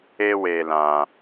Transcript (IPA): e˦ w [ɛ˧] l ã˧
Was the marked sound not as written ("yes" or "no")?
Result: yes